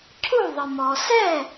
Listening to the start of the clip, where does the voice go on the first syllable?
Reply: falling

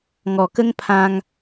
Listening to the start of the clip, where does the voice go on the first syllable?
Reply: low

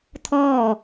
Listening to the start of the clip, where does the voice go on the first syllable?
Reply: falling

